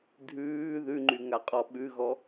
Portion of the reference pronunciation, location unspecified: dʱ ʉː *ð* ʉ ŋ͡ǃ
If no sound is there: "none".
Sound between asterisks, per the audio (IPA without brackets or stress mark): ð